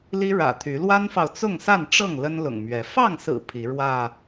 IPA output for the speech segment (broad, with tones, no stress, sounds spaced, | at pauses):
l i˦ ɻ ä̰˨˩ t̪ʰ y˨˦ l w a˦ n f ɑ˨ ʊ̯ t͡s ʊ˥˨ ŋ s a˥˨ n ʈ͡ʂ ɤ˥˨ ŋ l ə˦ n l ʊ̰˨˩ ŋ m ɥ ɛ˨˦ f ɑ˥˨ ŋ s ɹ̩˨˩ pʰ i˨˦ ɻ w ä˥˨